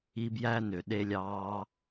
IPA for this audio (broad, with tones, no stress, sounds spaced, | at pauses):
i˧ b j æ˦ n ø˨ ɗ e˧ lʲ ɑː˧